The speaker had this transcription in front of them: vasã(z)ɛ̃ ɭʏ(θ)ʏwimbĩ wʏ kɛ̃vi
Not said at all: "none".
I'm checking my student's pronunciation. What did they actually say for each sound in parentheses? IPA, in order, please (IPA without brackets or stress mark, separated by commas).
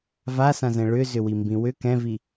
z, z